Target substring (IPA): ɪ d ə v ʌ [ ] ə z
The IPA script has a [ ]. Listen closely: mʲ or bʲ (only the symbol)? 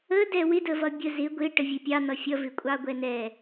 bʲ